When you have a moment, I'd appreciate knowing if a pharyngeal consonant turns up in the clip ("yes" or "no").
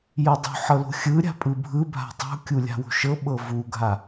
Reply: yes